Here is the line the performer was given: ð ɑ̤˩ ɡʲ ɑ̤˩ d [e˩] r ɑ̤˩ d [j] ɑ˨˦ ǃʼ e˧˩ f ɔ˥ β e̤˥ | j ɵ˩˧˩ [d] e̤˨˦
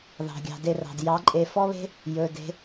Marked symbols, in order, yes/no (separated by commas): no, yes, yes